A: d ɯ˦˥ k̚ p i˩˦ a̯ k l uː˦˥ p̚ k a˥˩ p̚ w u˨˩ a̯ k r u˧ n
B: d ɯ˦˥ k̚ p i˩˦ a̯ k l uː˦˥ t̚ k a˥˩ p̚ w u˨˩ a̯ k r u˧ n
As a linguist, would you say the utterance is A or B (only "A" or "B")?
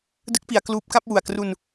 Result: A